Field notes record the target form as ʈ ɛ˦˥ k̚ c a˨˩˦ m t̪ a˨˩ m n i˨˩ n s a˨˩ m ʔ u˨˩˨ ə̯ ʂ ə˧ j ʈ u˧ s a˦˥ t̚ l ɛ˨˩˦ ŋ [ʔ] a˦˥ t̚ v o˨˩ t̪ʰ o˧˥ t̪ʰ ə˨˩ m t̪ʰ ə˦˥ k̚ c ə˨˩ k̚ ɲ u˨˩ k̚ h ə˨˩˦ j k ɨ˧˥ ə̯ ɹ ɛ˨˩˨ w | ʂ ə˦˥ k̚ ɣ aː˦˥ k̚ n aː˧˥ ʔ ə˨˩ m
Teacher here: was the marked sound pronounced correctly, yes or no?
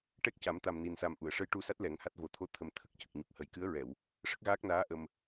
no